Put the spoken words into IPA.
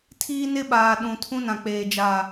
tʰ iː˦ n ɪ˦ ɓ aː˨ ɗ ũ˨ tʰ ũ˦ n ã˨ k͡p eː˨ d͡ʒ aː˨

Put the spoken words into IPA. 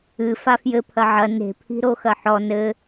ɨ f a f j ɘ pʰ ɐ ʕ ɐ n e̤ pʰ i̤ ɾ o x ɐ ħ ɔ n ɘ

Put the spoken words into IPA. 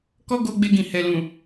k ɔ˦ ɡ o˧ ɡ͡b e˧ ɡ ĩ˨ h ɛ˨ l ũ˨

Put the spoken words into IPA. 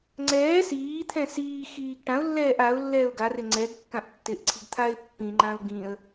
ŋ͡ǀ ɛː s iː t̪ʰ ɛ̃ s iː x iː ɡ ʈ ã ʊ̯ lː ɛː ʔ a ʊ̯ lː ɛː ʊ̯ ɡ a r ɪ ŋ͡ǀ ɛ ɡ kː ã ʔ tː ɪ ʔ ǀʰ i̤ ɡ t̪ʰ a ɪ̯ pː ĩ ŋ͡ǃ ã ʊ̯ ɡ ĩ ə̯

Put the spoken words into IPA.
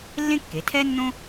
lː ẽ˥ kː e˩˧ tʰ ɛ˥ nː õ˥

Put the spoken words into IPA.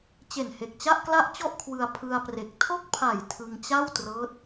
t͡ɕ e˨˩ n h e˨˩ k̚ t͡ɕ a˥˩ ʔ k l a˥˩ ʔ t͡ɕ ɔ˥˩ ʔ kʰ w ɯ˧ a̯ pʰ ɯ˧ a̯ p r e˨˩ k̚ tʰ o˥˩ k̚ pʰ a˨˩ j tʰ ɯ˧ ŋ t͡ɕ a˥˩ w t r ɤː˦˥ t̚

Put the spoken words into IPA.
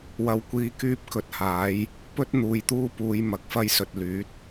w ɐ˨ w kʷ iː˨˧ k yː˧ p̚ k ɵ˧ t̚ h aː˨˥ j | p ɵ˥ t̚ n̪ uː˨ j t̪ uː˥ p uː˨˧ j m ɐ˨˥ k̚ f ɐ˥ j s ɵ˨ t̚ l yː˨˥ t̚

